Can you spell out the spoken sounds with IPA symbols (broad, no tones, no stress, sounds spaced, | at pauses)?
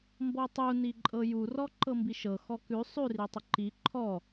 m b ɔ tˤ u n i ǃʼ ɤ j u r ɔ ǃ ɤ m b i ʃ ɤ x ɔ k ʉ sˤ ʉ r i tˤ ə ǃ i ǃʰ ɔ